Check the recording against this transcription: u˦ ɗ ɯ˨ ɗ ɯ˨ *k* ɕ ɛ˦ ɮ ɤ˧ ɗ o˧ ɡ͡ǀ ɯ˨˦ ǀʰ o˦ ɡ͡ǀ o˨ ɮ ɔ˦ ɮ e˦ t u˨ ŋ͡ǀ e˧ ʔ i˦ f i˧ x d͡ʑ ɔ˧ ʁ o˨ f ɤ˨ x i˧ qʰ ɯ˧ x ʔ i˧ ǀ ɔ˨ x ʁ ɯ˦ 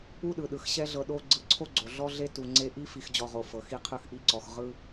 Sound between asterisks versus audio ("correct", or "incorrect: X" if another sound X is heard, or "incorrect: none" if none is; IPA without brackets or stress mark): incorrect: x